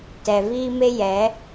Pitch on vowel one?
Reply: low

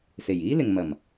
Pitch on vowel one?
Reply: low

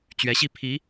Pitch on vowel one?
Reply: rising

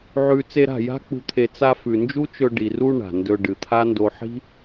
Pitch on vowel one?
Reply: low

